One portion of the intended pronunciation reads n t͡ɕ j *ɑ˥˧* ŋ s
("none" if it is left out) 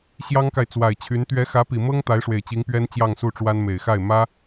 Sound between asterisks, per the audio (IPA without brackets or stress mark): ɑ˥˧